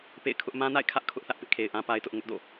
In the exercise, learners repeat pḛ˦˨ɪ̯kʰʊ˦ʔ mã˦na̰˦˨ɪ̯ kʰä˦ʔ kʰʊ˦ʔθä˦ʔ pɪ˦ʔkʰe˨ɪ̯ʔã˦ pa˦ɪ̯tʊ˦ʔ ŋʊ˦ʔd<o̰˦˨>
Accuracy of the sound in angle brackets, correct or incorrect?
correct